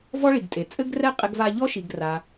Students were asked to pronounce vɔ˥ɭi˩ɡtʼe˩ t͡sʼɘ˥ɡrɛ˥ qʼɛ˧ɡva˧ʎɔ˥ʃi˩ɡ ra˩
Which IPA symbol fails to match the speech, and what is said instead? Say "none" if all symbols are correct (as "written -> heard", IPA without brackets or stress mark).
none